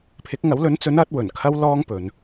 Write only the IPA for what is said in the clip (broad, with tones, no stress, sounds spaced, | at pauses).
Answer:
pʰ ɪ˨˥ k̚ ŋ ɐ˨˥ w l ɵ˨˥ n t͡s ɵ˨˥ n ɐ˨˥ t̚ w ɵ˨˩ n kʰ ɐ˥ w l ɔː˥ ŋ p ɵ˨˧ n